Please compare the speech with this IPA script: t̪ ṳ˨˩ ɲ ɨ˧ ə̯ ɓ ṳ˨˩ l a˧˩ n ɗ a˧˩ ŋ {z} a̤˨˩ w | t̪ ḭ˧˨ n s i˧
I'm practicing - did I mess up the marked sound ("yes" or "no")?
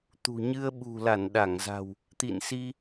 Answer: no